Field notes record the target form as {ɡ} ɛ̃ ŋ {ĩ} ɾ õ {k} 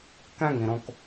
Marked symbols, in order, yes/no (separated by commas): no, yes, yes